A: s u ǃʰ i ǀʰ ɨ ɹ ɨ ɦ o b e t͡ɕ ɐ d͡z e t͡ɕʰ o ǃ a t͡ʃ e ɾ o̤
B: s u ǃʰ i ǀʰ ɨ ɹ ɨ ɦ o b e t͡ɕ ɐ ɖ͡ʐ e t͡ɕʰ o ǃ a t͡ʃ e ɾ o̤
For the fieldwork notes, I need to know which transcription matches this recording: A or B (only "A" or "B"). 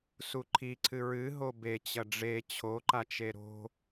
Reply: B